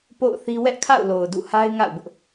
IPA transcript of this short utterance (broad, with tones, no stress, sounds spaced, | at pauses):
p o̰˦˨ ʊ̯ θ i˦ w ɛ˦ ʔ kʰ a̰˦˨ ʊ̯ l o˨ ʊ̯ d ṵ˦˨ h a˦ ɪ̯ ŋ a̰˦˨ ʊ̯ b ʊ˦ ʔ